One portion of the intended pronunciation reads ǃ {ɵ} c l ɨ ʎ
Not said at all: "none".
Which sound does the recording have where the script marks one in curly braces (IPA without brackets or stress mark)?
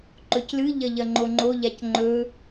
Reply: ɵ